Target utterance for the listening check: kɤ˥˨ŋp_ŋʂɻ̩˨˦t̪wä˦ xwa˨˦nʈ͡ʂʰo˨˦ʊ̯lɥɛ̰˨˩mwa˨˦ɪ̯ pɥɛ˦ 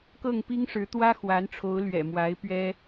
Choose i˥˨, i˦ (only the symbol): i˦